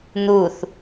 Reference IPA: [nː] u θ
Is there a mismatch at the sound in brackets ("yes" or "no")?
yes